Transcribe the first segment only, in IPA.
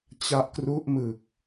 t͡ɕ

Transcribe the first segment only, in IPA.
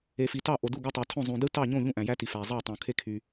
e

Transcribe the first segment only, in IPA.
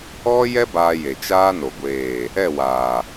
ɔ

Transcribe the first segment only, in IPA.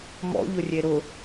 m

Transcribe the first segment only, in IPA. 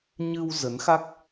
ɲ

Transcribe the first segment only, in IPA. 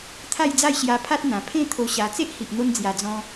t̪ʰ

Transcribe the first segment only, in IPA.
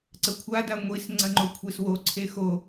ǀ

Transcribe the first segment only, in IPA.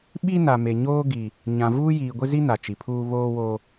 ɓ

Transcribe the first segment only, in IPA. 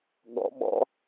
ɠ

